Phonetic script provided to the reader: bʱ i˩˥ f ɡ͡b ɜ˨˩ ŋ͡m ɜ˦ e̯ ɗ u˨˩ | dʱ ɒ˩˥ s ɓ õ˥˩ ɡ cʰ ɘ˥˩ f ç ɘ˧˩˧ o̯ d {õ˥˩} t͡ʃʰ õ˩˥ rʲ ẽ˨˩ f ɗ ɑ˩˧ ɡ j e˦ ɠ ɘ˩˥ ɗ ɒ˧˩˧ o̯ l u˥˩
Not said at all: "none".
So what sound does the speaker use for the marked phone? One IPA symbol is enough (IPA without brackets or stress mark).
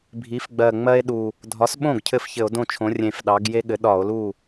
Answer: õ˥˩